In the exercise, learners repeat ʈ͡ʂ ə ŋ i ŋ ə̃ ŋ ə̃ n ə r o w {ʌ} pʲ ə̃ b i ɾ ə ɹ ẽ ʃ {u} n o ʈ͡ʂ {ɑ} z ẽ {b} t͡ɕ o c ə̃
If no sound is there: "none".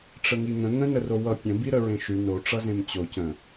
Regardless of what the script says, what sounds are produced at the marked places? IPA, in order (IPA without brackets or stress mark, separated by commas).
ʌ, y, ʌ, m